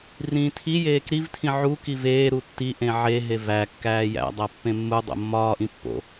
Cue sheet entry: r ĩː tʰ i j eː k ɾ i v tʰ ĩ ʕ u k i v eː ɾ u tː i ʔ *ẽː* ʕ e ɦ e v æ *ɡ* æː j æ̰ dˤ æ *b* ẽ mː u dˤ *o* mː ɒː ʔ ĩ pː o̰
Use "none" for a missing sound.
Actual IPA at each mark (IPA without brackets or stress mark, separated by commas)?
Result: ẽ, kː, pː, o̰